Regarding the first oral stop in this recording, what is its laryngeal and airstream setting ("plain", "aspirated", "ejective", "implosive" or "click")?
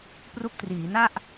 plain